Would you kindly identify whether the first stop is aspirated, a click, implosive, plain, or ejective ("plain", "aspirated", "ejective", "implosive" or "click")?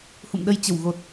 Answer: implosive